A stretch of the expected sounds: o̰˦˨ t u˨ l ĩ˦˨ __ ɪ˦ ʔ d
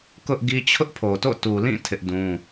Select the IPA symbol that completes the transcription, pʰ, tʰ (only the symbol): tʰ